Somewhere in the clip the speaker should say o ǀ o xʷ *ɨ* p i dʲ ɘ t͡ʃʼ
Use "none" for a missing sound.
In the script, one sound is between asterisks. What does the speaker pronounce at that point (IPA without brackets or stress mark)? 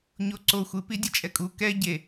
ɨ